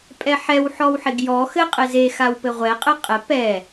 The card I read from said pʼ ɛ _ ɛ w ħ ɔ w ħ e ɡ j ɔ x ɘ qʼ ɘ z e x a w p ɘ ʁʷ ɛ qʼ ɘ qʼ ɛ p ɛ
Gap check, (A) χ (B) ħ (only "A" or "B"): B